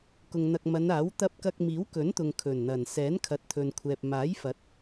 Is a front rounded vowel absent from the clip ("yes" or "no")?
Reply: yes